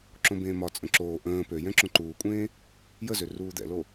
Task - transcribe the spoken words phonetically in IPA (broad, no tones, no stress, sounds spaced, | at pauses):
ǁ õ b ẽː m ɒ t͡sʼ ə̃ ǁ oː ʔ ə̃ː p ø j ɛ̃ ǁ õ ǃ uː kʷʼ ẽː | j ə z ø r uː d̪ ɛ̰ l o